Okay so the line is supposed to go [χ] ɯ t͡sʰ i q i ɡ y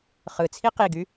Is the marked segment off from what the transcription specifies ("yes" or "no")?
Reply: no